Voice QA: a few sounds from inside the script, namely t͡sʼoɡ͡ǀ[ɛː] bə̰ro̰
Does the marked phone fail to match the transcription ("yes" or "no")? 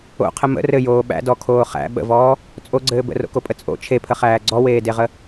yes